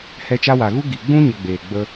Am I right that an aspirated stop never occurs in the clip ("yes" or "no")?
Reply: yes